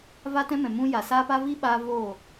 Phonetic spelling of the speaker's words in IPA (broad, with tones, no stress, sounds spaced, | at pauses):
v a˦ t ɛ̃˦ m ɛ̃˨ m ũ˦ j a˨ s aː˦ p a˦ v i˦ ɓ aː˦ v oː˦˨